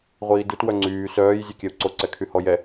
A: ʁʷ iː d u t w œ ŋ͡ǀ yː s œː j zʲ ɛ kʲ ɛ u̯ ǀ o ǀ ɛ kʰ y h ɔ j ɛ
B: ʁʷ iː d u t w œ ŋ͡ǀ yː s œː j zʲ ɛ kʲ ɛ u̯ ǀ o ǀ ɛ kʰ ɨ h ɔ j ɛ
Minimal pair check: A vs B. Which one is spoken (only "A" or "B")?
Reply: A